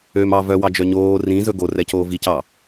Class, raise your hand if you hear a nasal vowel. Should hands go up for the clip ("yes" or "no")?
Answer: yes